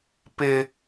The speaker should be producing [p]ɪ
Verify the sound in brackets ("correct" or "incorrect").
correct